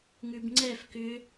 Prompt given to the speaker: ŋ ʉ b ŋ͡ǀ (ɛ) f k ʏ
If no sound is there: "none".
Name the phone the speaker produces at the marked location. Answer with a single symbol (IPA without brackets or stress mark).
ɛ